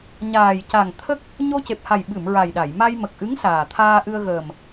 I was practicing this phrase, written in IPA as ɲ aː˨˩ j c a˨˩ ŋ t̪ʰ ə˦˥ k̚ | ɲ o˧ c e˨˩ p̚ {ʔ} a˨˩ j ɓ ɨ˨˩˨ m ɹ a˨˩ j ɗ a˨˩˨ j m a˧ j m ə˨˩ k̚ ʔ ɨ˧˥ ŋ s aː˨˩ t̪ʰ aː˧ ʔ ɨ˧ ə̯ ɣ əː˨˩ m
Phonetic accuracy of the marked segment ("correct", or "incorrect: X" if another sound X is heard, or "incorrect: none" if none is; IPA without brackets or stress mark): incorrect: h